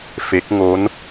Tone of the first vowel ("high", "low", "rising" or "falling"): rising